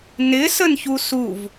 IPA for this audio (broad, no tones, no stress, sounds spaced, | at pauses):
n ɪ s ə n ç u s u v